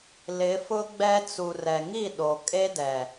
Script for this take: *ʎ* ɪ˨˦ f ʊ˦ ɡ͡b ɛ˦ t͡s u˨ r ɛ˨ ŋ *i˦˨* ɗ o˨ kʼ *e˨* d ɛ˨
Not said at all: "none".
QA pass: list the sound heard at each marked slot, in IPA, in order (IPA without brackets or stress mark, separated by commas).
l, i˦˨, e˦